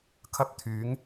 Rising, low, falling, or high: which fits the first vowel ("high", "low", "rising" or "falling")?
high